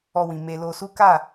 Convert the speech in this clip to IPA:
ɔ˧ w ĩ˨ m e˧ l o˧ s u˦ k a˦˨

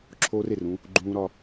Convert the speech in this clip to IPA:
ǁʰ oː˦ r e˨ r ũ˧ | ɡ͡ǃ ũː˧ ɾ ɒ˧

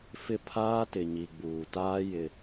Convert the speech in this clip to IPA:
f ɪ˦˨ pʰ aː˦ t ɪ˨ ɲ i˨ ɡ͡b uː˨ t aː˦ j ɪ˦

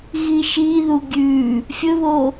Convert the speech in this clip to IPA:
ɣ i ʃ i ð u ɡʲ ʉ | fʲ ɵ β o

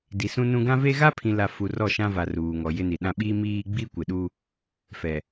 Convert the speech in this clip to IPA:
d i˨ s ũ˦ n ũ˦ ɡ ã˦ v e˦ ɣ a˦ pʰ ĩ˨ l a˨ f u˨ r ɔ˦˨ ʃ ã˦ v a˨ r uː˨ ŋ ɔ˨ j ɪ˦ n i˨ ɗ ã˦ ɓ i˦ m iː˦ ɡ͡b i˦ kʷ ɪ˨ ɗ u˦ | f ɛ˨

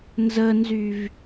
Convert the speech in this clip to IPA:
n z ə n z y v

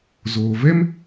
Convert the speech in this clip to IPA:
z oː˨ v ɛ˦ m

